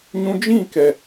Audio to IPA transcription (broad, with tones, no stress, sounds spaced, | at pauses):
ɲ ũ˧ d͡ʒ ĩ˦˨ k ɛ˨